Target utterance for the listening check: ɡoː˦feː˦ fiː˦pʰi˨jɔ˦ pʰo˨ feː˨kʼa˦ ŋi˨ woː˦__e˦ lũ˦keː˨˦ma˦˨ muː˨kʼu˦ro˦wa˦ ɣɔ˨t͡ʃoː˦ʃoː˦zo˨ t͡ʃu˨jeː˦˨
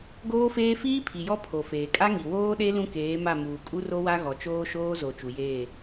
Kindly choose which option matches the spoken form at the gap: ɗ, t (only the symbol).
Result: ɗ